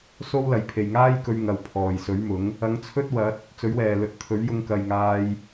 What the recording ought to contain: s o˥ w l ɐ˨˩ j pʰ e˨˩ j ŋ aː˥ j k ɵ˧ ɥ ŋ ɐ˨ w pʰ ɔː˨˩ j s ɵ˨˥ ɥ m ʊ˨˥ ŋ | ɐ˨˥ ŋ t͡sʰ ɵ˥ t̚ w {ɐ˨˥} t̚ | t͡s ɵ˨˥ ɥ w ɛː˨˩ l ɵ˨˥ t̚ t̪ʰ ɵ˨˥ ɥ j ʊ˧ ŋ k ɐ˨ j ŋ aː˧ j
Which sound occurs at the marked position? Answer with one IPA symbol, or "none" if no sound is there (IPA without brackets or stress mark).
ɐ˨˥